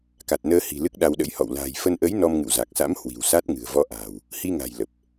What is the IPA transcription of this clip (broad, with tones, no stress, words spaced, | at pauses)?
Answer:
ka˨˩t̚nəː˧hi̤˨˩ lɨ˦˥k̚ɗa˧wɗə̰˧˥jhɔ̰˧˨w la̤ː˨˩jfə˧nʔə˨˦j nɔ˧mŋɨ̰˧˨wza˨˩k̚sa̰˧˥m hwi̤˨˩wsa˦˥t̚ŋɨ̤˨˩ə̯ vɔ˧ʔa̤ː˨˩w | hi˧ŋa̤˨˩j lə˨˩p̚